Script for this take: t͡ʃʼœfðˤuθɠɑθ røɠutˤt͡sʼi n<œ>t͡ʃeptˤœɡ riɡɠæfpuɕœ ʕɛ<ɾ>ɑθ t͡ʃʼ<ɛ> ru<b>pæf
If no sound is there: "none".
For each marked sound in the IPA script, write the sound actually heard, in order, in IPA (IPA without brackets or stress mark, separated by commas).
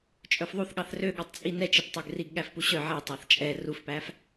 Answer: ɛ, tˤ, ɛ, f